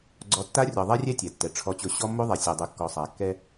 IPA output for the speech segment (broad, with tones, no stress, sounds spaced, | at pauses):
ɡ͡ǀ ɔ˨ tː a˦ rʲ ɔ˨ ðˤ ɛ˦ rʲ ɛ˦ tʲ ɛ˨ tː ɛ˨ ʈ͡ʂʰ ɔ˦ t͡ɕ ʊ˦ ɕ ɔ˦ mː o˦ ðˤ ɛ˨ sʲ ɔ˨ dˤ u˨ kː ɔ˨ sˤ a˨ kː ɛ˦